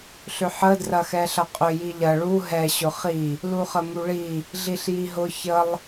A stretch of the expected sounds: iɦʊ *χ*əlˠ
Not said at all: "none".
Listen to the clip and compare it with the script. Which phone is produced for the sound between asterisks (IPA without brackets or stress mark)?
ç